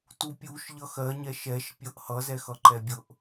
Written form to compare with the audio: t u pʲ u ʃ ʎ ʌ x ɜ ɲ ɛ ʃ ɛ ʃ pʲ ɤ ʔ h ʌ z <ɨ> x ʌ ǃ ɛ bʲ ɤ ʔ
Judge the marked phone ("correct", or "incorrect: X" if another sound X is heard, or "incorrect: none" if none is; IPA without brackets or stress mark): incorrect: ɛ